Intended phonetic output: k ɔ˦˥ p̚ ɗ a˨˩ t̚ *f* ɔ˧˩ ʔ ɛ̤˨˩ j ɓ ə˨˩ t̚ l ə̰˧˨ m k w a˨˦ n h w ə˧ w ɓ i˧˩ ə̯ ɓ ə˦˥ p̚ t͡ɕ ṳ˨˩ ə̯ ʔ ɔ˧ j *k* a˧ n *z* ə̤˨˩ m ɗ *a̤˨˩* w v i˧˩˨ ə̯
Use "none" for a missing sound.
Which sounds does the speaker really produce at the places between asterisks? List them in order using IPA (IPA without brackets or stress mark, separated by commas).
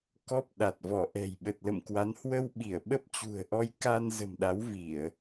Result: v, k, z, a˨˦